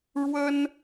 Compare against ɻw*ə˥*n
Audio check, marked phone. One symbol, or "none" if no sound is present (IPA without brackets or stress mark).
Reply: ə˥